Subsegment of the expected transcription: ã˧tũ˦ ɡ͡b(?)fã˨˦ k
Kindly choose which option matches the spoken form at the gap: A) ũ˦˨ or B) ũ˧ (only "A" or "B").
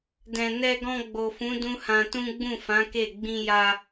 A